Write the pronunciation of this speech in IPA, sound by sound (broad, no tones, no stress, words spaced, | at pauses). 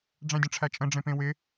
ɖ͡ʐæ̃dʲə̃ʈ͡ʂʰæt͡ʃʼə̃ ɖ͡ʐẽpẽwɪ